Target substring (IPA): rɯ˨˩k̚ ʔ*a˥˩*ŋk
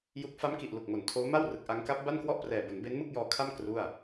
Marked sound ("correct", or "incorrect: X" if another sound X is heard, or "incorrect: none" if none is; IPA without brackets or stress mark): incorrect: a˦˥